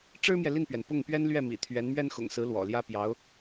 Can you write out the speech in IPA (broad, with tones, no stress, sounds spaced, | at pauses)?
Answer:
ʈ͡ʂ ɻ̩˥ m j ɛ˨ l i˥˩ n p ɥ ɛ˩ n p ʊ˥˩ ŋ p ɥ ɛ˥ n l ɥ ɛ˥˩ m ḭ˨˩ t̪ʰ ɥ ɛ˧˥ n m ɥ ɛ˥ n x ʊ̰˨˩ ŋ s ɹ̩˧˥ l w ɔ̰˨˩ l j ä˥ p j ɑ˧˥ ʊ̯